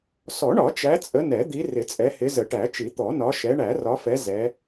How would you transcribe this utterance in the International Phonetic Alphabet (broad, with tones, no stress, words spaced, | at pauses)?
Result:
sɔ˨˩˦ɳɒ˨˩˦ t͡ʃæ˨˦t͡sʼə˨˦ nɛ˨˩˦d̪i˨˦ rɪ˨˩˦t͡sʼɛ˨˦hɪ˨˦ zə˨˩˦ʈæ˨˩˦t͡ʃi˨˩˦ t̪ɔ˨˩˦ nɒ˨˦ʃɛ˨˦ ɳæ˨˩˦rɒ˨˦fɛ˨˦ zɛ˨˦